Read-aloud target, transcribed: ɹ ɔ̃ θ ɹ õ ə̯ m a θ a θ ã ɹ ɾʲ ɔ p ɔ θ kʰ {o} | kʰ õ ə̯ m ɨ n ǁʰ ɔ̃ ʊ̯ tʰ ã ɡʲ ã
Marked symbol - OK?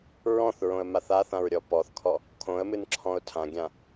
no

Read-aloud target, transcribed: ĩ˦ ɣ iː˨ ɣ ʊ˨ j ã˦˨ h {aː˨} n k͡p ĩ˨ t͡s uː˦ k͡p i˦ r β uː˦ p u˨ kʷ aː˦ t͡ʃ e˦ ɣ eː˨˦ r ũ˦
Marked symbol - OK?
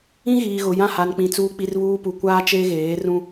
no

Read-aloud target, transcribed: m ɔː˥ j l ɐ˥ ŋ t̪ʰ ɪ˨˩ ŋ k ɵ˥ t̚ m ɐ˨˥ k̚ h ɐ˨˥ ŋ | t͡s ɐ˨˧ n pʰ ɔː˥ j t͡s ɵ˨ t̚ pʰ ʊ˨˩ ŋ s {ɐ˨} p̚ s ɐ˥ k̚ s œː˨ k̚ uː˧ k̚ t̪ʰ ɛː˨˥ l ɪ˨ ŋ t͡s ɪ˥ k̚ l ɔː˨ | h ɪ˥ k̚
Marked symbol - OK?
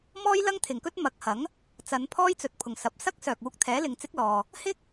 yes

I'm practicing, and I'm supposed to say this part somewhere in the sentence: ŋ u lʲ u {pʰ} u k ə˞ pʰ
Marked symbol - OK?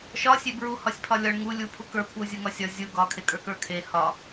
yes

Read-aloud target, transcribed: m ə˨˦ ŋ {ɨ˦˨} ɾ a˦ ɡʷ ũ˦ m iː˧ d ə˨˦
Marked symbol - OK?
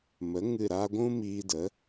yes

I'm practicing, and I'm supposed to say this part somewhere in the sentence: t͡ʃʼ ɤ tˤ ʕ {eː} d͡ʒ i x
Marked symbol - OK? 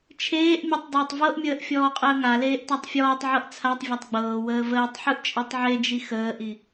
no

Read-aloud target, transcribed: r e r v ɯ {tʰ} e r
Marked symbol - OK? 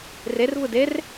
no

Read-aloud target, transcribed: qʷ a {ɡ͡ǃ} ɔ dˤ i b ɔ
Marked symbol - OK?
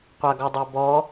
no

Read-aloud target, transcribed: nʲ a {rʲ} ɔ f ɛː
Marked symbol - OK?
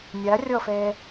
yes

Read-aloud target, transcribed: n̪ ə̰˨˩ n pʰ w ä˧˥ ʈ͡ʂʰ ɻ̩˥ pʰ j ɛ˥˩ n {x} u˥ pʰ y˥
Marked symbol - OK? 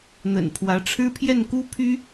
no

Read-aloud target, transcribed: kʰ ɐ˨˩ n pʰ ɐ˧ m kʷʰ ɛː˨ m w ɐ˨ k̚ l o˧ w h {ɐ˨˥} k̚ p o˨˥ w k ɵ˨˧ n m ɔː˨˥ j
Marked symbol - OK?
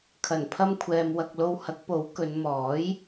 yes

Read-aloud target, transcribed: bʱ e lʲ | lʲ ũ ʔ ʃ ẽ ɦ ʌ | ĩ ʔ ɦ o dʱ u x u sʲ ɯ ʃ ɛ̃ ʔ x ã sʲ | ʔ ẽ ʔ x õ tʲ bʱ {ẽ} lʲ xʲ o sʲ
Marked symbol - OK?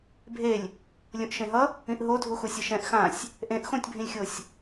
no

